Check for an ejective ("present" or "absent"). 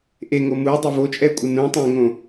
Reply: present